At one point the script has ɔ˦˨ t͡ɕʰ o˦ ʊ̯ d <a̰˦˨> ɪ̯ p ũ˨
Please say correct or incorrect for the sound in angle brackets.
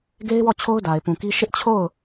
incorrect